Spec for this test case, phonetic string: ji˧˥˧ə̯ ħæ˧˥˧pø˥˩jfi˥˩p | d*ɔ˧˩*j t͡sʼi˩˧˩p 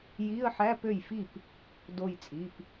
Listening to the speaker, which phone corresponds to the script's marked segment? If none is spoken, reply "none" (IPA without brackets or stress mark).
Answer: o˧˩